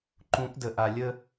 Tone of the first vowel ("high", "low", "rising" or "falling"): rising